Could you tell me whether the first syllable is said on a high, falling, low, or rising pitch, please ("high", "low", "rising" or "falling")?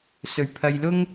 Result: low